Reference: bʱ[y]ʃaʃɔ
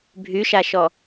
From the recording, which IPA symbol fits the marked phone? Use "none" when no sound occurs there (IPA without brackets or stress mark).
y